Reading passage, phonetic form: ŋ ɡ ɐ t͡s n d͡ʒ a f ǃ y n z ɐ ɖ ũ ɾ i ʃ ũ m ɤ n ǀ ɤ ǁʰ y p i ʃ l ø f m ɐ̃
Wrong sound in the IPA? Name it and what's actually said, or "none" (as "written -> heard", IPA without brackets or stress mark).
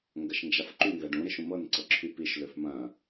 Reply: t͡s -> ʃ